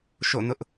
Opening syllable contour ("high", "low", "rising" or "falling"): falling